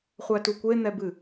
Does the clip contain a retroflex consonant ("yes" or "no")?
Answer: no